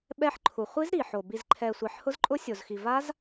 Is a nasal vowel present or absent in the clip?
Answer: absent